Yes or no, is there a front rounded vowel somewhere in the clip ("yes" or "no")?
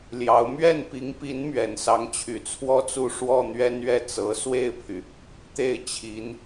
yes